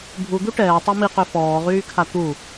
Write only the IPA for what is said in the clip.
bʱu d̪uʈɛː tˤemiqø fɔːʁyːkʰa t̪u

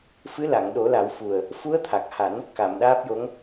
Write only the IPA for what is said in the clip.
fɨ˧˥la˨˩˨ŋɗo˨˩˦la˨˩˦w fu˨˩ə̯ | fu˧˥ə̯t̪ʰa˨˩k̚ha˨˩˦n | ka˨˩˨mɗaː˦˥p̚jo˧˥ŋ

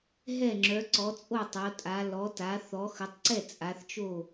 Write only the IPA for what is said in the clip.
ɦɛ˥˨ŋ͡ǁœ˨˦ ǀɔ˨˦t͡sʼo˥˨tˤo˨˦tʼa˨˦ lɔ˨˦ta˨˦ θɔ˨˦xə˨˦tˤǀɛ˥˨ t͡sʼa˨˦θt͡ʃo˥˨

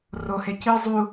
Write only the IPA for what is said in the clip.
rohe ci zˤu

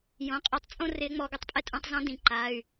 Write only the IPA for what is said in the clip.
jõ˩˧ qʼe˧˩˧tˤ t͡sʼõ˥ rɪː˧˥ŋ͡mɔː˧ɡo˧˥tˤpʼɛ˥ tʼũ˧tˤzɔ̃˧˥ dĩ˧˩˧ǃa˩˧˩y̯

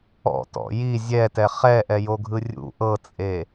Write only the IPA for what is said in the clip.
ɔ̰tɔ̰ ji zʲɛtɛ χɛʔɛjoɡʱɯ rʲṵ ʔɤt͡sʼe

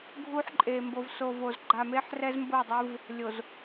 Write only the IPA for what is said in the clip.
ɡʱu˦ħǃʼe˨ mbo˨vso˨vo˨z ɡ͡ǃa˨me˦ħ rɛ˦zmbo˦˨dˤɯ˦v | lʲo˨z

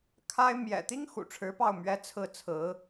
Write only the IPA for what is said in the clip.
kʰa˥ɪ̯ mjɛ̰˨˩t̪i˥ŋ xṵ˨˩ʈ͡ʂʰɻ̩˧˥pɑ˥˩ʊ̯ mɥɛ˧˥ t͡sʰɹ̩˥˩t͡sʰɹ̩˧˥

